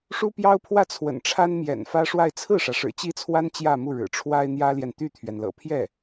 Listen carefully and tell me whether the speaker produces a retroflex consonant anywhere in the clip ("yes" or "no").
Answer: yes